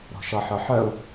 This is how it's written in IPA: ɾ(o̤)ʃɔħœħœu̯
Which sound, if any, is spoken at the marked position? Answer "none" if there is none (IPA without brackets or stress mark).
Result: o̤